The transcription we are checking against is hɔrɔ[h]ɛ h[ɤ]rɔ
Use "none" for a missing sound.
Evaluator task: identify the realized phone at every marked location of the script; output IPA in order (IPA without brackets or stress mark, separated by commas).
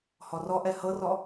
ʔ, ɤ